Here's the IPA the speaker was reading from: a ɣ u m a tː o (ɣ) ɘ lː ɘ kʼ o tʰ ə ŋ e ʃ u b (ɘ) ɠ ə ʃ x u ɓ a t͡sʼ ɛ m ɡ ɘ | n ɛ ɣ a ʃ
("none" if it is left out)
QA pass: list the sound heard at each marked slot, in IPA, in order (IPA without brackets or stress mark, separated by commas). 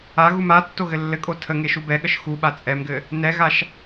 ɣ, ɛ